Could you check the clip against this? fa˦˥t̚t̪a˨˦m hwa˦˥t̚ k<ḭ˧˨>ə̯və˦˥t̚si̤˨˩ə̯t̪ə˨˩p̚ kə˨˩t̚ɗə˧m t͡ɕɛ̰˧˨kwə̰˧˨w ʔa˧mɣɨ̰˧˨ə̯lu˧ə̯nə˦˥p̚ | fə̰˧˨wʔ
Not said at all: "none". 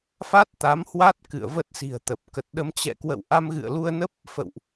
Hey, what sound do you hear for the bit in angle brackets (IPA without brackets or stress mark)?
ɨ̰˧˨